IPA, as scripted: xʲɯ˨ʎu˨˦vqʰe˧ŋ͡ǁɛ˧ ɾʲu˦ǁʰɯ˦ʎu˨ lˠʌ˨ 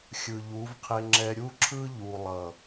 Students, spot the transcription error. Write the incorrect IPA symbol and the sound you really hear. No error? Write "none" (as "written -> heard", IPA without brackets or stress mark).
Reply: none